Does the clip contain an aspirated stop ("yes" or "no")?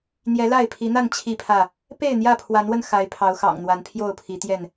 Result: yes